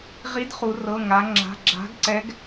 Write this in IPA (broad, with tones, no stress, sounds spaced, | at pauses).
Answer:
ʁ i˧˥ d χ u˩˧ r ɤ˩˧˩ ŋ a˩˧ ŋ͡ǁ a̤˩˧˩ ɡ͡ǁ a̤˧˥ ɡ ǀ ɛ˧˥ ɡ